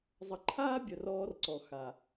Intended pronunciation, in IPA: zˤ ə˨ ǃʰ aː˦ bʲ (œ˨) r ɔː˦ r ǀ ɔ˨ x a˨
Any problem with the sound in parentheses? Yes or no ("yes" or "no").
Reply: no